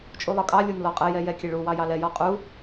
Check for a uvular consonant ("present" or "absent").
present